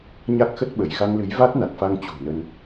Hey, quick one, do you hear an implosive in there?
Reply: yes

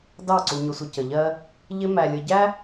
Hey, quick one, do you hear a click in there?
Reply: yes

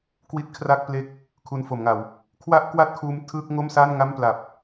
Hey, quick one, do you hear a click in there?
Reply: no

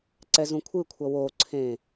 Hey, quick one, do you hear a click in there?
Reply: yes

